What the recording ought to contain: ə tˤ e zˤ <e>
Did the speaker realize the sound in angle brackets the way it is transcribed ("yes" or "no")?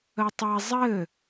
no